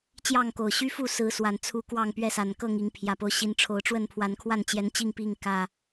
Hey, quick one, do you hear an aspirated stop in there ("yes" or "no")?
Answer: yes